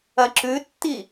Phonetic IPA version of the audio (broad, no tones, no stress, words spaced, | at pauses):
ɐǁʉtːi